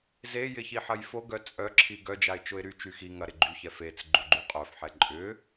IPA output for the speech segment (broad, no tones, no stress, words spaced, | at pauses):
zejɪçi ħɐjfoɡœ t͡sʼœǁʰi ɡœd͡ʒaɪ̯t͡ʃʊɪ̯ ɾy t͡ʃyxi ŋɐɾɪ ɡ͡ǃyçɛ fet͡s ɡ͡ǃuɡ͡ǃuqʼœfħɛ ǃʼʏ